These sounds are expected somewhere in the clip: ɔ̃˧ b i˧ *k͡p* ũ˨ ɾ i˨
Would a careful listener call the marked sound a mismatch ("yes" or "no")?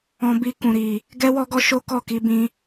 yes